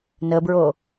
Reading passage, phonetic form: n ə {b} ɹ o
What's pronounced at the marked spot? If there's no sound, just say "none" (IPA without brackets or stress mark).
b